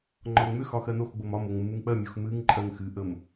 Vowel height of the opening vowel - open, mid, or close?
open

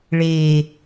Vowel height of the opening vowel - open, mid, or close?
mid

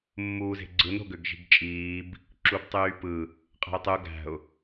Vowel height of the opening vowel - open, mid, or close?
close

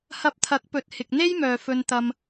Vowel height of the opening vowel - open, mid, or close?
open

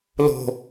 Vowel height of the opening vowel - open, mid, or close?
mid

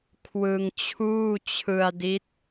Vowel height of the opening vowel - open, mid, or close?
close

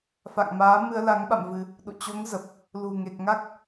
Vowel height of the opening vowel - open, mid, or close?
open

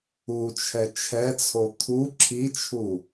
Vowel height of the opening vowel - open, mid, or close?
close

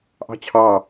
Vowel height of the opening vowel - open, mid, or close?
open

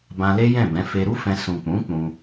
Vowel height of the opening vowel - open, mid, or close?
open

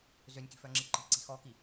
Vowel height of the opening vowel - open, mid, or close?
mid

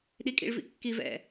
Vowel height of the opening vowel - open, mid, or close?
close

